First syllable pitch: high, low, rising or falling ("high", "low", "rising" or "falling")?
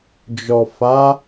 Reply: low